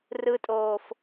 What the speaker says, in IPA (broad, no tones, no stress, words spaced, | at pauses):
rɯtʼoːf